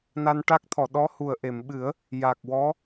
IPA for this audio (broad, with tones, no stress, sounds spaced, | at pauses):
n a˧ n ʈ a˦˥ k̚ t̪ʰ ɔ˨˩˨ ɗ ɔ˧˥ h u˨˩ ə̯ ʔ e˨˩˨ m ɓ ɨ˨˩˦ ə̯ | j a˨˩ k̚ w ɔ˧˥